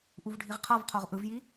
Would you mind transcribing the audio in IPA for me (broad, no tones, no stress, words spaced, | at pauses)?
ʔuvɖʱiʁqʰɤv qʰoʁʔɯvji